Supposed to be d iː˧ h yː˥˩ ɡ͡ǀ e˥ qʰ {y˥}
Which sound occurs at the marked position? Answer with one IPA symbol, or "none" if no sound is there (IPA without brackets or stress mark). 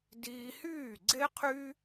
y˥